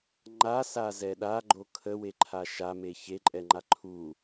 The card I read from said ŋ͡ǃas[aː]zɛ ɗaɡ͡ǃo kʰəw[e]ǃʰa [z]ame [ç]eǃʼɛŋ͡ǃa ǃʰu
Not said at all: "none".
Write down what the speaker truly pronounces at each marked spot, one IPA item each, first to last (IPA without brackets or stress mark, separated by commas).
a, e, ʃ, ç